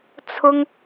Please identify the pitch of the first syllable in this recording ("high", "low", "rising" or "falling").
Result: high